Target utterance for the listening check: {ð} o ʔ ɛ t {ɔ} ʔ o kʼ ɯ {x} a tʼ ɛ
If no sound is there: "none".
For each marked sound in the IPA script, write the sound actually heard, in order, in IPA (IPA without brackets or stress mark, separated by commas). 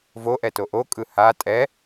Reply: v, o, h